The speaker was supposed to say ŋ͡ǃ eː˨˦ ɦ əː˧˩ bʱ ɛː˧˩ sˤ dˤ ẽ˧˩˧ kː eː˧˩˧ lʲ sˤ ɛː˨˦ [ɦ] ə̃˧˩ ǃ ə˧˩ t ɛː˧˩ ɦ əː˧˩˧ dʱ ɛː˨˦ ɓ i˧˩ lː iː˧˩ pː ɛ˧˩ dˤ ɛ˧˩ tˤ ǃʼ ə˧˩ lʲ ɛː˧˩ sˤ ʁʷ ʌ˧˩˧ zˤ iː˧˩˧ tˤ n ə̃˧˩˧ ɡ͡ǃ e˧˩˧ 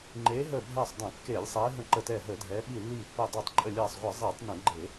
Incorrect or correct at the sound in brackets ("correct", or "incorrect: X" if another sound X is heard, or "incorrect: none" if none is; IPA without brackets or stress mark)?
correct